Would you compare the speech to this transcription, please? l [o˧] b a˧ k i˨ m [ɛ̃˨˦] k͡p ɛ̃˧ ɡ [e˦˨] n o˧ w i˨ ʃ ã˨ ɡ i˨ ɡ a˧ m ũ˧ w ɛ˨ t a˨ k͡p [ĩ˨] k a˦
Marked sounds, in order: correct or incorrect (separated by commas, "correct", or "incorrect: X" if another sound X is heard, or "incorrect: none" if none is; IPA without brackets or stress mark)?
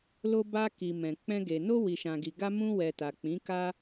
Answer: correct, incorrect: ɛ̃˨, incorrect: e˨, incorrect: ĩ˨˦